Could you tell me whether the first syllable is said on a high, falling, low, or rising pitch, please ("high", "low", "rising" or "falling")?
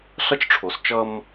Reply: high